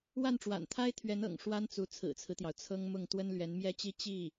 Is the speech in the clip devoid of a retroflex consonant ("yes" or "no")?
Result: no